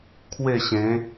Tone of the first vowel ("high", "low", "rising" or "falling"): falling